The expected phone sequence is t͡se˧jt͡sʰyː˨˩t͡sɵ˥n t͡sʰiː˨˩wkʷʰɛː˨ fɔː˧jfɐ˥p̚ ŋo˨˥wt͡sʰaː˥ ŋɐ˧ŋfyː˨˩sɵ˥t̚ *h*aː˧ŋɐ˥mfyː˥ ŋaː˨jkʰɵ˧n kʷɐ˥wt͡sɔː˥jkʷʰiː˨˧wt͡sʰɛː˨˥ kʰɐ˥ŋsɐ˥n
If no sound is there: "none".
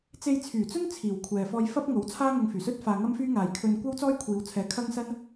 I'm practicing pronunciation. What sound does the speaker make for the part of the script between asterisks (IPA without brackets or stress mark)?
f